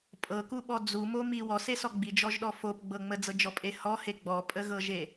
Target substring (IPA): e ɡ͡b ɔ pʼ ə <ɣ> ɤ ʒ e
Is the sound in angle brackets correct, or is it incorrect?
correct